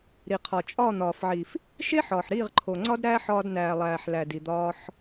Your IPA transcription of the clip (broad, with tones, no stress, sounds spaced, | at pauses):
ɾ i˨ qʰ ɒ˨ t͡ʃʼ ɒː˦˨ n̪ ɒː˨ f ʕ i˨ f | ʃ e˦ ħ ɒː˨ ħ ɾ iː˦˨ ʁ ǃʰ o˨ ŋ͡ǀ ɒ˦ d ɾ æː˦ ħ ɒː˧ d n æː˨ lˠ æː˨ ħ l æ˨ d i˨ d̪ ɒː˧ ħ